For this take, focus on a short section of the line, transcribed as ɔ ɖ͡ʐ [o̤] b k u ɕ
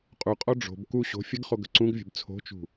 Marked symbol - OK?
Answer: yes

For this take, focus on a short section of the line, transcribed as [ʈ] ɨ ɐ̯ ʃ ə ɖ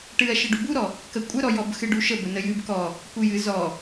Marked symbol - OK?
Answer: yes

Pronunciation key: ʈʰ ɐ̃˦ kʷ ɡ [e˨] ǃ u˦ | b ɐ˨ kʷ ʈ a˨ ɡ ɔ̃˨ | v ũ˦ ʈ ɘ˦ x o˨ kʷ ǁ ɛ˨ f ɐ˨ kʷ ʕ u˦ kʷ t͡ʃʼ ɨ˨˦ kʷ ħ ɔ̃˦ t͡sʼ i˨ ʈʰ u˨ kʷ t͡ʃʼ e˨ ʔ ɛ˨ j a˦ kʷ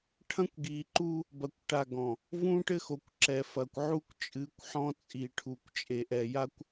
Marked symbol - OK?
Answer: no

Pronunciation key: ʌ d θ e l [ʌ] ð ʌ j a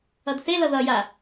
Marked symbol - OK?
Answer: yes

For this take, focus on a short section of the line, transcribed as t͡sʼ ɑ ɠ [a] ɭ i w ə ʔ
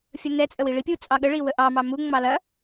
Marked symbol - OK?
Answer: no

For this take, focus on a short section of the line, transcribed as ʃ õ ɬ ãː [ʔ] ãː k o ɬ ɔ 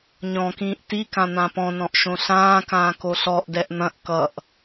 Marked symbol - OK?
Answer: no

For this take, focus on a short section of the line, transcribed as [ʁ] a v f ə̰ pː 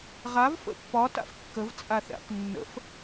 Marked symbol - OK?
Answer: yes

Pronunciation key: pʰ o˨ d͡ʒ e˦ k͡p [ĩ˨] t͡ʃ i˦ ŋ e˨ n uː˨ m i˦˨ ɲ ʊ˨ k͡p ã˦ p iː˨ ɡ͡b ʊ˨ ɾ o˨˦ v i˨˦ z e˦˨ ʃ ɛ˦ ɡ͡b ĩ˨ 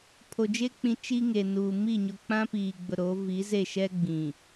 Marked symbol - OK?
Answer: yes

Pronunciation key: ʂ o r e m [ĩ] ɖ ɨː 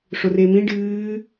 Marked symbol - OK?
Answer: yes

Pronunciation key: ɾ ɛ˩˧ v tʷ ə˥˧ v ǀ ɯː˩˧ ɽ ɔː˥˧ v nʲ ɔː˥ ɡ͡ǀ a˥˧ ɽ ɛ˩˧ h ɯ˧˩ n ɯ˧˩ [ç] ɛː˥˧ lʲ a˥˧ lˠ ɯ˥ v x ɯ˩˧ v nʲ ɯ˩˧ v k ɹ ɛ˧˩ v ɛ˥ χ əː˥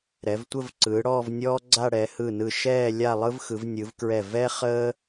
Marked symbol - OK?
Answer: no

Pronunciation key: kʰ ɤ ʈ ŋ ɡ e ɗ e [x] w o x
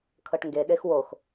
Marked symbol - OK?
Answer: yes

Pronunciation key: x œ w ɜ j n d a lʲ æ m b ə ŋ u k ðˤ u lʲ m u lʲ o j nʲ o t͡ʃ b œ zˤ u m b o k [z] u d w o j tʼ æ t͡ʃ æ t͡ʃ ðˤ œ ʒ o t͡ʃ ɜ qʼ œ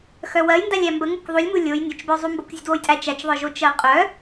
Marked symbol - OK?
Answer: no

